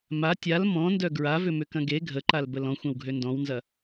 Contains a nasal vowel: yes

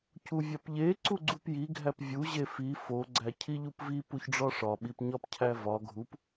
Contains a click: yes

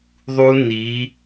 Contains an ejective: no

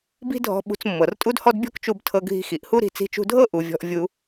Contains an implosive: yes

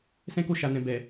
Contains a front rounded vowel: no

